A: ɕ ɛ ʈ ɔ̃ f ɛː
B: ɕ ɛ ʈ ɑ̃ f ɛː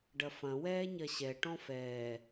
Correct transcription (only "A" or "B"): A